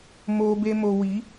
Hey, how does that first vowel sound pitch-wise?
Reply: low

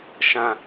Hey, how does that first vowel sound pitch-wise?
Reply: low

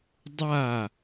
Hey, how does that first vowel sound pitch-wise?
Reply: falling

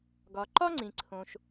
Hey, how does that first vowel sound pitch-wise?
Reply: low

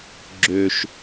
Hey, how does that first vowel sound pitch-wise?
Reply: low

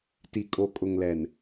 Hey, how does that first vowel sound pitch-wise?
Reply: low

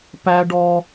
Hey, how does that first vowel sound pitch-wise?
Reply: high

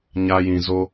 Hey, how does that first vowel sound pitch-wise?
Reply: high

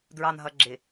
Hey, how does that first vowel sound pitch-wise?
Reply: low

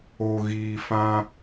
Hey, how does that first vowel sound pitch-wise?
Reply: low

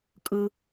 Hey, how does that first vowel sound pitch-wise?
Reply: low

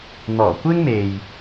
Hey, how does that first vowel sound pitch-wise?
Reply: low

